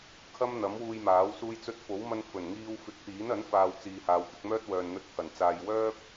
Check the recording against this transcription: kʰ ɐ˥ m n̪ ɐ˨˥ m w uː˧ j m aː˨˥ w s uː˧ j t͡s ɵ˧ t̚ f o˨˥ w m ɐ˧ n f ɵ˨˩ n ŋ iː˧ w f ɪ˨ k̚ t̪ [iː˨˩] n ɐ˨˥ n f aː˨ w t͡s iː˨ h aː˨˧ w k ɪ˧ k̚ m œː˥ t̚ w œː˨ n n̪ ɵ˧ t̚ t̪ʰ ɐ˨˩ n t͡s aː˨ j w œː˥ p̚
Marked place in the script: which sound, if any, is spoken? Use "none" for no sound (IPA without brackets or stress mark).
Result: iː˨˥